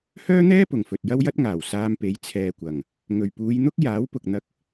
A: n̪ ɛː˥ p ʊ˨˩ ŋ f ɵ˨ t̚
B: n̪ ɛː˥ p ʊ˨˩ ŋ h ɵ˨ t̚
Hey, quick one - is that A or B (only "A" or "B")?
A